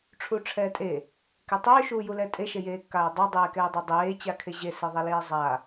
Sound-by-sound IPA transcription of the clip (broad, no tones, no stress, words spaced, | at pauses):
ʈ͡ʂʰuʈ͡ʂʰɛːtʼe | ketˤʏː ʃuːjulɛtʼe ʃejeːkːaːdˤa dˤeːkɛːdˤɛdˤeː t͡ɕakʰeʑe seðˤɛleːzˤa